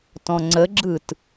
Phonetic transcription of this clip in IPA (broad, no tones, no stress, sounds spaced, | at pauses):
t ɔ̃ ŋ͡ǀ ə ɡ͡ǁ ɯ t